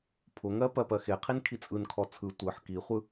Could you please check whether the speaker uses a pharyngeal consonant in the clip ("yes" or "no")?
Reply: yes